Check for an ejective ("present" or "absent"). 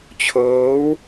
absent